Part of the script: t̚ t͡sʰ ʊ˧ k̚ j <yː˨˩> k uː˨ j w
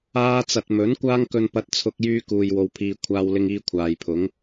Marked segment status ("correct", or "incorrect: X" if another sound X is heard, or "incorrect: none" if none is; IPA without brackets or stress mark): incorrect: yː˧